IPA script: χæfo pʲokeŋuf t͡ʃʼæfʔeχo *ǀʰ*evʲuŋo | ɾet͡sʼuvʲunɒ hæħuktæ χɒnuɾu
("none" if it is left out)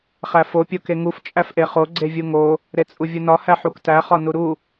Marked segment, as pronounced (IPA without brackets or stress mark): ɡ͡ǀ